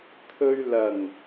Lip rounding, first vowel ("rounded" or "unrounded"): rounded